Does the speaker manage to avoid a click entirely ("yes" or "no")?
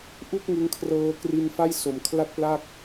yes